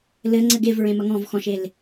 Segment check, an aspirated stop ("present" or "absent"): absent